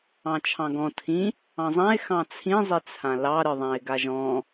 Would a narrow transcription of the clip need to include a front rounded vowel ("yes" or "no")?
no